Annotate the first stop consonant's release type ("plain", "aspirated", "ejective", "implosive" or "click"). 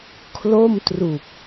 aspirated